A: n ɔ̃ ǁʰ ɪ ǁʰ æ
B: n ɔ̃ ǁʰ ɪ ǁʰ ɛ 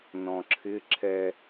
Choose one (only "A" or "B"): B